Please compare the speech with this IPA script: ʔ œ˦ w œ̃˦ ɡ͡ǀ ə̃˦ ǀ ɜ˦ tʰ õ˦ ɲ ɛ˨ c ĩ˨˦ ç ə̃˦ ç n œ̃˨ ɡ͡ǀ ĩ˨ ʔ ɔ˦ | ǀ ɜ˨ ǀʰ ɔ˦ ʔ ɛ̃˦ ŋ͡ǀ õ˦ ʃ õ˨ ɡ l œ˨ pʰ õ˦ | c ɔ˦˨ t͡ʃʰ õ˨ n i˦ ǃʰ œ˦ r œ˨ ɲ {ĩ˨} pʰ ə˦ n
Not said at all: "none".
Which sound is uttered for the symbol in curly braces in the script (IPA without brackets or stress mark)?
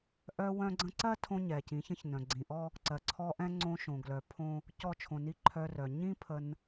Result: ĩ˦